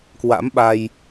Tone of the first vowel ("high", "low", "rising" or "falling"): rising